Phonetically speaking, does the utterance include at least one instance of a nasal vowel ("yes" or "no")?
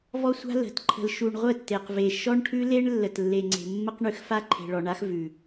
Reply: no